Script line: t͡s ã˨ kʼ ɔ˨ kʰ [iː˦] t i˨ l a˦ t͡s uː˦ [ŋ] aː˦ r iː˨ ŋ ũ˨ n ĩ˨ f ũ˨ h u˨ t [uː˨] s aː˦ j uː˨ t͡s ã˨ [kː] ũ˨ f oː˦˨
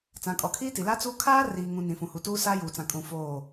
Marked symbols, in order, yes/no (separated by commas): yes, no, no, no